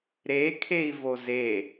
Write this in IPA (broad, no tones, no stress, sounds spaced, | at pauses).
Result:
ɾ e kʰ e i̯ v o z e